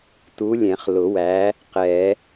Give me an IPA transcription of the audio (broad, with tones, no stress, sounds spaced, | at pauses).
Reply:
t u˨˥ lʲ ɛ̃˨˩˦ χ l ʊ˨˩˦ w æ˨˥ | q ɛ˨˩˦